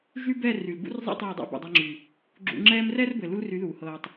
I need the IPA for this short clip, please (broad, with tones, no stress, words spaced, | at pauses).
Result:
ʒy˦bɛː˦˨r y˨l bṵ˦rzˤɛ̰˦ tˤɘː˦˨dˤa̰˦ bṵ˨dˤɛ˧ŋ͡ǁy˨ | ɡ͡ǁṵ˧ ŋ͡ǁɛː˦m rɛː˦rbɘ˨lu˧l ry˨˦ðuː˨ hɤː˨tˤ